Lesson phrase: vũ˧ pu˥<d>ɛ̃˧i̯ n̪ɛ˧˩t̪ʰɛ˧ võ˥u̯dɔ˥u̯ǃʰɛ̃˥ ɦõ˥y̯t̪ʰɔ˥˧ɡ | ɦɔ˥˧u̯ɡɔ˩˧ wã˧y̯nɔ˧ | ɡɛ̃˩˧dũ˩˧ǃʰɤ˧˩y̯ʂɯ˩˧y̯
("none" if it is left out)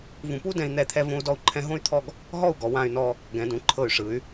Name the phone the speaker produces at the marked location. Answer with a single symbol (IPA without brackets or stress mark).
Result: d